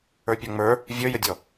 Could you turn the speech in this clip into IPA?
ə˞pʲɔŋ͡mə˞ | vʲə˞jədʲɔ

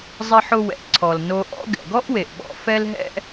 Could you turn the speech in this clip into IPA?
zˤɪ˧ħʊ˧wɛ̰˩ ǀʰɔ˩lno˧ʔɔ̰˥ ɡɛ̰˩ɡɔ˥ʔwe˩ʔɓɔ̰˧ fɛ˥lɦɛ̰˥

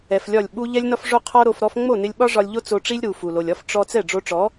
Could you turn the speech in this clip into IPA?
ɛ˨flʲɒ˦˨lʲ ɓu˦ ʎɛ˦lʲnɒ˦f ʐo˧ qʰɔ˦ ɾo˧f ɾɔ˧fŋ͡mo˦˨nɪ˧lʲ ɓɒ˦ ʐɒ˧lʲʎo˦ t͡so˧ʈ͡ʂi˦lʲ ɾu˨ fu˨lo˨lʲɒ˦f ʈ͡ʂɔ˧ t͡sɛ˦˨ɖ͡ʐo˧ʈ͡ʂɔ˨˦

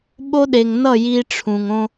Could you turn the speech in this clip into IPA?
ɓo˦ɗe˨ŋnʌ˦˨ ji˧ʈ͡ʂʰũ˨ŋ õ˧

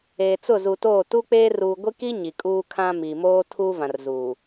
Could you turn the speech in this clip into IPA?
eː˨t͡sʊ˦˨zu˨toː˦˨ tu˦k͡peː˦ ruː˨ɡʷi˦ki˦ ɲi˨kʼuː˦kʰã˦ miː˨moː˦tʰu˦ vã˨rzuː˨

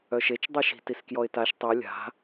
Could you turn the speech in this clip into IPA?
œʃet͡ʃ dˤœʃi̤ tiskjɔɪ̯taʃ tˤi lʲa̤

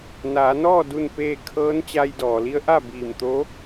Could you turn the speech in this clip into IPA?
naː˩˧nɔː˥˨ du˥˨npeː˥˨ kʰɤː˧˥nt͡ɕa˧jdɔː˩li˧˥ə̯ ʔa˥˨biː˧˩mt̪oː˧˥

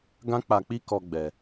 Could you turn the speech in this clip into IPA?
ɡã˦k͡pa˧k͡pi˦kɔ˧ ɡ͡bɛ˧

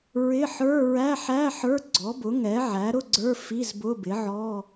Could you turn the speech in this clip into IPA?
ɹɪ˧˥˧ ħə˞˧˥˧ ɹæ˧˥˧ħæ˧˥˧ ħə˞˧˥˧ɡ͡ǀɔ˩˥bʊ˩˥ ŋɛ˩˥ʕæ˩˥ ɾʊ˧˥˧ɡ͡ǀə˞˧˥˧ fi˧˥˧zbʊ˧˥˧bɪ˩˥ʕɔ˧˥˧

